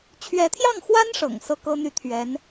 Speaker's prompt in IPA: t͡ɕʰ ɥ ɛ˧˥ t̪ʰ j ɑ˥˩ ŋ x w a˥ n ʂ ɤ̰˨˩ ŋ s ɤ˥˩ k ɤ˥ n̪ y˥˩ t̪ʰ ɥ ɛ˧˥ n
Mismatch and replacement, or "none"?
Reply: none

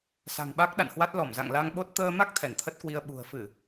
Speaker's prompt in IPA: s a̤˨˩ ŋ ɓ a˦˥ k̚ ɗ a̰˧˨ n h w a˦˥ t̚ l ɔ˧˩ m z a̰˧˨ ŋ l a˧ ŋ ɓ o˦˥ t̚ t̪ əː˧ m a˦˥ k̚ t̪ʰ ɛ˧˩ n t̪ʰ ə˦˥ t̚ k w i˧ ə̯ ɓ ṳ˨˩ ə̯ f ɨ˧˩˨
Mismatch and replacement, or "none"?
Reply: none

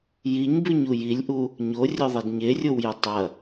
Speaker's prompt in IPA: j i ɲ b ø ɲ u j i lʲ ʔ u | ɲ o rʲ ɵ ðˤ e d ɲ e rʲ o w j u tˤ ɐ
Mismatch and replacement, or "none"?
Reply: ø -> ʉ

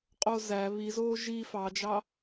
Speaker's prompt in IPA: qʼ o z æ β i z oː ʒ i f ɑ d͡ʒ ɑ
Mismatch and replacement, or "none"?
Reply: none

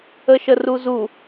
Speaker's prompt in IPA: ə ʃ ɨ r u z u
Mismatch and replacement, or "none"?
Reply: ɨ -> ə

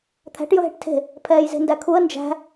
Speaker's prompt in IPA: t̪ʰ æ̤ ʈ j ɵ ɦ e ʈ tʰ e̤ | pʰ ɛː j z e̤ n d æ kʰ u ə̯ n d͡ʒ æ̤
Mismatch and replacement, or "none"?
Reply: none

